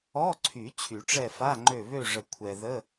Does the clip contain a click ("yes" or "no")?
yes